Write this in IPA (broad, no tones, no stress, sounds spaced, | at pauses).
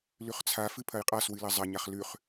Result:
l ʉ χ t͡sʰ a f ɨ pʰ ɐ j qʼ a s w ɨ l ɐ zˤ ɐ ɲ a χ l ʉ χ